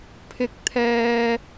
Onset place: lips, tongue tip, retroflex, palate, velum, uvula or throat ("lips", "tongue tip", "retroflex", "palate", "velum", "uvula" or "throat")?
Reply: lips